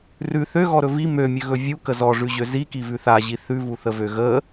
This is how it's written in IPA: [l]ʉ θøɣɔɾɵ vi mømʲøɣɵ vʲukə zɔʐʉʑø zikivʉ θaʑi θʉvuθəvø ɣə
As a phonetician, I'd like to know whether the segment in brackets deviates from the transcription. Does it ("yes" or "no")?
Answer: yes